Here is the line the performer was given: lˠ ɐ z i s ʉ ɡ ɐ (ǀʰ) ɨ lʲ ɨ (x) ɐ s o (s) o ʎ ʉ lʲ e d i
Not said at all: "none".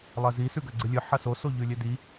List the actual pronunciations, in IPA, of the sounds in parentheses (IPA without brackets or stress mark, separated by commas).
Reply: ɡ͡ǀ, ħ, s